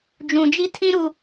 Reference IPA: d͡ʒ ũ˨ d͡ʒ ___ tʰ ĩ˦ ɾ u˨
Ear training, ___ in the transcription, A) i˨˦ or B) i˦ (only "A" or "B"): B